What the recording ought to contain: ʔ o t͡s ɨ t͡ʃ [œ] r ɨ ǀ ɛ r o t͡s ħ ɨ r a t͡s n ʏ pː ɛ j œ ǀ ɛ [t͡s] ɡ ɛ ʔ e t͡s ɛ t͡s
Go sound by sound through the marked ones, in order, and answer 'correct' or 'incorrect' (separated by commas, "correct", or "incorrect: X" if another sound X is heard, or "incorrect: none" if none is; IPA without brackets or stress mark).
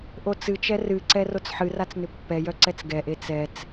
incorrect: ɛ, correct